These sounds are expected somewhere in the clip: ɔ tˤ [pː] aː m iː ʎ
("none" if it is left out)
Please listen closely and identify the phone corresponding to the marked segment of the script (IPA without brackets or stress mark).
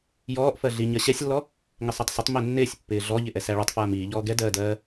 f